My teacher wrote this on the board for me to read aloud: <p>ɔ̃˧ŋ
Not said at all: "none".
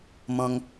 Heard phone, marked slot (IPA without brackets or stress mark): m